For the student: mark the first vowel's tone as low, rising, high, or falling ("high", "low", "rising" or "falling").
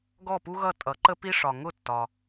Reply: falling